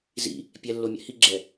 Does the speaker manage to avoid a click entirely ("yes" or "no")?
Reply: no